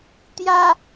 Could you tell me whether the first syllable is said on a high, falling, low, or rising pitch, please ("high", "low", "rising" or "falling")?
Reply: low